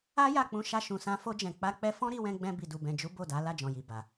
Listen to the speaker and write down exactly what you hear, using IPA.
a˦ja˦˨k͡pũ˧ ʃa˧ʃũ˨sã˧ fo˧d͡ʒɛ̃˨ k͡pa˧k͡pɛ˧fɔ̃˦ ɾi˧wɛ̃˧ɡ͡bɛ̃˧ bi˨du˨bɛ̃˨d͡ʒu˨˦ bo˦˨da˨˦ la˦˨d͡ʒɔ̃˨ji˨ ba˨

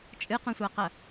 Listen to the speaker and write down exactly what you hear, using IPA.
t͡ʃʼɨqũsʷaqɐ

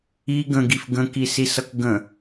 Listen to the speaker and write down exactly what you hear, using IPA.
i ɡə̃ɡif ɡə̃kisisʌk ɡə̃

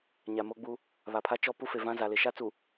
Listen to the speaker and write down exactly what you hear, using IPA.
ɲa˨mo˦ɡ͡bu˦ | βa˨pʰa˦t͡ʃɔ˦ pu˦fe˨vã˦ za˨lɪ˨ʃa˦t͡su˨

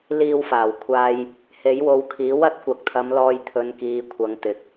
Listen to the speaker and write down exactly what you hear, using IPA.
liː˧wfaː˨˩w kʷʰaː˧j | he˨˥jwo˨˧wkʰiː˨˥ wɐ˥t̚kʷɐ˨k̚t̪ʰɐ˨˧mlɔː˧j t̪ʰɵ˨˧nkiː˨˧ kʷʰɐ˨˧ŋt̪ɪ˨˥k̚

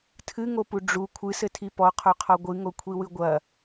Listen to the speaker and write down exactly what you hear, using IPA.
tʰɨŋopu ɖ͡ʐu kʷʰɨsɘtʰi pɔqʰoqʰɔ ɡʷɨŋokʷʰiwɨ ɡʷɐ

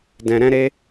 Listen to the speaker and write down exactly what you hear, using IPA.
dɛ̃˨ɾɛ̃˧ɾe˧

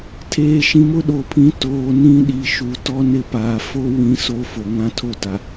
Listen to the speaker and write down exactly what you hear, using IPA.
tʰeː˨ʃĩ˨mʊ˦ ɗo˨pʰĩ˨˦ toː˨ nĩ˦ɗi˨ʃu˨ tɔ˦nɪ˦˨pa˨ fo˦ wĩ˦ soː˦fo˨ŋã˦ tʰo˦ta˨

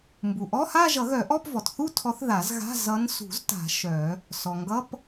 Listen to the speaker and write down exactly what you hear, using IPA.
mbu˩ ʔɔ˧˥˧ha˥˧ ʒʌ˨˩˦ɣœ˨˩˦ʔɔ˧˥˧p vɔ˩tθu˥˧tʰɔ˨˦θ ða˨˩˦zɣa̤˧˥˧ zʌ˨˦nsṳ˨˩˦zta̤˨˩˦ ʃœ˨˩˦ | sɔ˩ŋɡʌ˧˥˧p

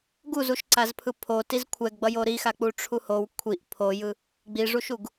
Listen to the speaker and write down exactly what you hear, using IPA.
ɡuzuʃǀazpʰɯ pʰotiz kʷʰɛɡɡ͡bʌjo ɾixak͡pu ʈ͡ʂʰuhow kʷʰiʔ pʰojɯ | ɡ͡biʐuʃuɡ

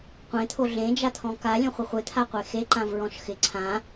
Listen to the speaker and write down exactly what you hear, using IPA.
qʷẽt̪ʰo ɮẽd͡ʒat̪ʰɔ̃ ka lʲɔ̃χʷɪχʷet̪ʰa qʷexe ǃãvɹɔ̃ʃxɪ ǀʰã

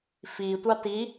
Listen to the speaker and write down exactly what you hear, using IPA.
fi tʷɑti

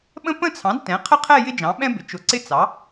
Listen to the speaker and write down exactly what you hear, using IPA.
ɓə̃˥ pə̃˥˧t͡sʰɑ̃˩˥d tɛ̃˩˥qʰə˥˧qʰɛ˥˧ jɪ˥d͡ʒɑ̃˩˥ɓɛ̃˥bɪ˩˥ t͡ʃʊ˩˥ǀɪ˥ t͡sɑ˩˥

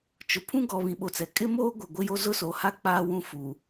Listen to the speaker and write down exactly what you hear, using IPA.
t͡ʃʊ˨pʰũ˦ ɡɔ˨ βĩ˨ɓo˨t͡sɛ˨ kʼɪ˦moː˦ ɡʷɪ˨ ɡʷɪ˦jo˦ zʊ˦so˨ha˦ k͡paː˦wũ˦ fu˨

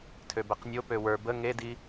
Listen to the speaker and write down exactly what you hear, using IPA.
tʰøbɛqnʲo pøwə˞ bə ŋedi

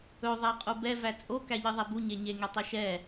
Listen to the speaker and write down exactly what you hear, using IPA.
ɵ ðˤæqʼobɛ væt͡sʼo kæʎiðˤɛbu ɲeɲe ŋetˤɵʃɛ

